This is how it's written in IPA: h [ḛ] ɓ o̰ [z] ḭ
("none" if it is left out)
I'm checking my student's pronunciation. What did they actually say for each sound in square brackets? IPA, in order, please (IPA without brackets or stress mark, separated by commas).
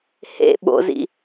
ḛ, z